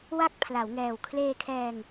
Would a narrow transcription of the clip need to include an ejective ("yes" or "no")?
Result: no